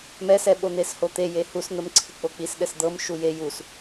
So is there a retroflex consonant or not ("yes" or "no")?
no